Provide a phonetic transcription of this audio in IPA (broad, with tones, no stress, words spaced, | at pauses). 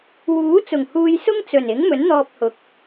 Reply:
wuː˨˥t͡sʊ˨˩ŋ huː˧j sʊ˥ŋt͡sɵ˨˩nɪ˨˥ŋmɵ˨˥n n̪ɔː˧p̚hʊ˨k̚